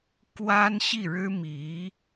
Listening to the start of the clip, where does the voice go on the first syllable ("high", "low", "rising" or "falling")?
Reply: high